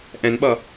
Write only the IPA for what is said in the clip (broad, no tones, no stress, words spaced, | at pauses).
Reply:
ʔɛ̃nɓʌ